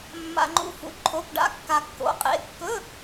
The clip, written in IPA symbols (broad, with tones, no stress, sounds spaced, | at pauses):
mː a̰˧ ŋ͡ǃ ṵ˦˥ f ṵ˧ ǃʰ o˧˥˧ p ɖ a̰˧˥˧ kː a˧ kː o̰˨˥ qʼ ḛ˨˥ kː ɵ˧˥˧